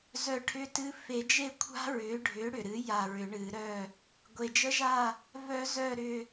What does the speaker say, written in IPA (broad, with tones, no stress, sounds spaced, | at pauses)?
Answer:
z œ˧˩ ʈʰ ʏ˦˥ t ɨ˦˥ f e˨˩˦ d͡ʒ e˥˨ kʷʰ a̤˦˥ ɹ ʏː˩˥ ɖʱ ʏː˩˥ ɽ ʏ˩ ɾ ɨ˩˥ j a˧˩ ɹ ʏ˨˩˦ ɳ ɨː˨˩˦ ɾ œː˥˨ | ɡʷ e˩ d͡ʒ ə˦˥ ʒ aː˥˨ | v œ˨˩˦ z œ˧˩ ɾ ʏː˧˩